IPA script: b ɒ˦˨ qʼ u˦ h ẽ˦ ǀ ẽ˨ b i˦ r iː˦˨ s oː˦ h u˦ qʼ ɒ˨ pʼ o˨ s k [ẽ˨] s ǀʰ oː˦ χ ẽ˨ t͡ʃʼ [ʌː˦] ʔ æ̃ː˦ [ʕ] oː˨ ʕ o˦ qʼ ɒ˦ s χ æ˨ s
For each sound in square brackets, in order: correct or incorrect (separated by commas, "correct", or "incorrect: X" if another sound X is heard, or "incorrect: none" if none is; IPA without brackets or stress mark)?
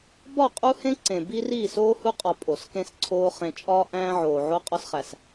incorrect: ẽ˦, incorrect: ɒː˦, correct